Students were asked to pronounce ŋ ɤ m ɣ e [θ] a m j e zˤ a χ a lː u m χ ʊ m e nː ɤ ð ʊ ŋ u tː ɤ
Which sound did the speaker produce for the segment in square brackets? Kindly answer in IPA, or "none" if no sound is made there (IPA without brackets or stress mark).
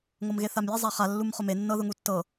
θ